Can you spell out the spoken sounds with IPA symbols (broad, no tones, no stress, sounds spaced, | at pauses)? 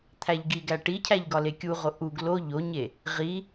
t̪ʰ æ ʎ ɡ i ɡ æ ʈ i cʰ æ ʎ ɡ ɒ l e kʲ u ʁ o ʔ u ɡ l o ʎ o ɲ e | ʁ i